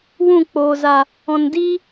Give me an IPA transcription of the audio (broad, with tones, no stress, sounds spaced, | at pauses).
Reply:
w ũ˦˨ k͡p oː˨ z a˨ | ɔ̃˨ n d i˦